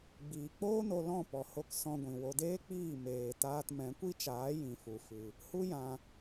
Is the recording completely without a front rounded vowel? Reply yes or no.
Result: yes